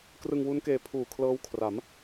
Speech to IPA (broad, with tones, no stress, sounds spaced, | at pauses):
k r ɯ˧ ŋ w u˦˥ n k eː˧ pʰ uː˨˩ kʰ l ɤː˦˥ w kʰ r a˩˦ m